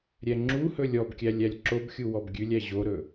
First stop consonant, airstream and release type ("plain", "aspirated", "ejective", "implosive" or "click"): click